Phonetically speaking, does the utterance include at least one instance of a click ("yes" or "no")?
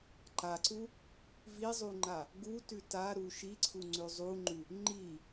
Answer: yes